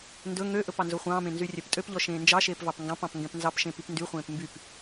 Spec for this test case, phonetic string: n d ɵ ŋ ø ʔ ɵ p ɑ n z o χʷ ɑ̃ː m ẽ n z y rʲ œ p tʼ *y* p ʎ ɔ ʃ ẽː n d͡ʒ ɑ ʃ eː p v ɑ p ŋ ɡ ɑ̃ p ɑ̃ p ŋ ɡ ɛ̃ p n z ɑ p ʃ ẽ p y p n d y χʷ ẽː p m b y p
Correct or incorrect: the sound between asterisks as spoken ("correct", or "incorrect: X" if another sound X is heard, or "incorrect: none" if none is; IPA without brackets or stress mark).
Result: incorrect: ø